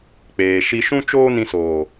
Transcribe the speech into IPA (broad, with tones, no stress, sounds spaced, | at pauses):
k͡p eː˨ ʃ i˧ ʃ ũ˦ t͡ʃ oː˦ n ĩ˧ s oː˨